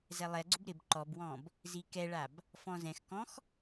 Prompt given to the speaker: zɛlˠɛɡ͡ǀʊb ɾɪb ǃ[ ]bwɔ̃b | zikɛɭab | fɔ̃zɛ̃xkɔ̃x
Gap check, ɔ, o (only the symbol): ɔ